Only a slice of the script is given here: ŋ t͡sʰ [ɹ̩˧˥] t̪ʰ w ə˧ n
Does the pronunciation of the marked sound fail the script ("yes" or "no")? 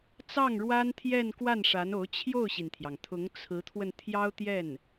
no